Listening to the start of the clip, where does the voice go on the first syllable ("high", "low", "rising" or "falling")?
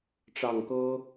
low